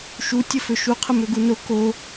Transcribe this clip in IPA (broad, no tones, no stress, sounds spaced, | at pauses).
ʃ u tʲ ə f ø ʃ u qʰ ə m ø ɡ u n o k o